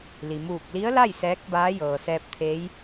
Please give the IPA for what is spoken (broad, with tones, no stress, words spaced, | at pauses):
li˩muː˧˩k̚li˧˥ə̯la˥˨j sɛː˧˥k̚baː˧˥jɤː˩ sɛː˧p̚t̪ʰe˧˥j